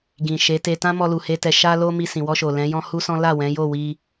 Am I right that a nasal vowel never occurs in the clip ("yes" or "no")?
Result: no